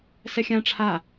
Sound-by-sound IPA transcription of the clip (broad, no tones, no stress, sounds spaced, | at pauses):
s ɛ xʲ ã ʈ͡ʂʰ a